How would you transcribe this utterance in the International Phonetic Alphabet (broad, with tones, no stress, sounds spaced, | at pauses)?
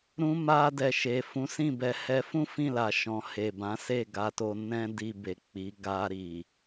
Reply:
ɾ ũ˧ m a˧ d ɛ˨ ʃ e˨ f ũ˨˦ s ĩ˦˨ b ɛ˨ h ɛ˧ f ũ˦ f ĩ˦˨ l a˨ ʃ ɔ̃˨ h e˨ b ã˨˦ s e˦˨ ɡ a˧ t o˧ n ɛ̃˦ d i˧ b e˨ k͡p i˨˦ ɡ a˧ ɾ i˨